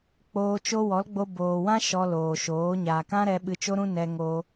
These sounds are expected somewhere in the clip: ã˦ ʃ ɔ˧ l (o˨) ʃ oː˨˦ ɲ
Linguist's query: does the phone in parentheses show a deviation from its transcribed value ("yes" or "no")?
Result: yes